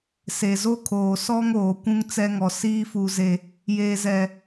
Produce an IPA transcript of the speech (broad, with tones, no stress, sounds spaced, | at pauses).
s e˨ z o˦ kʰ oː˨ s ɔ˦ ŋ oː˨ kʷ ũ˦ ŋ t͡s ɛ˦ ŋ ɔ˨ s iː˦ f u˨ z e˨ | j eː˨ z ɛ˨